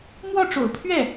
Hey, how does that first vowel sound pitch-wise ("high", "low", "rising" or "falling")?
falling